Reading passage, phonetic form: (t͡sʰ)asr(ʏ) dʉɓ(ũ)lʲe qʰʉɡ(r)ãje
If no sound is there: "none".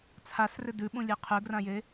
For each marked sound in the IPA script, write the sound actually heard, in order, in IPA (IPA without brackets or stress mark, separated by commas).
t͡sʰ, ʏ, ũ, r